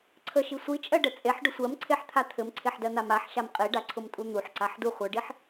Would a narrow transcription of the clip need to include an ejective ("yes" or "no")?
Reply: yes